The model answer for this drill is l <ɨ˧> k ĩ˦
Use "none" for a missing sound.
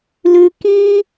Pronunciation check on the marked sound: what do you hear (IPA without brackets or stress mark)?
ʉ˧